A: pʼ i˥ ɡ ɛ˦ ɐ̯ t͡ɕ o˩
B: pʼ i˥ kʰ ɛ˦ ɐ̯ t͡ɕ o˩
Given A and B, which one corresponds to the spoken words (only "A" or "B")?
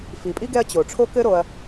A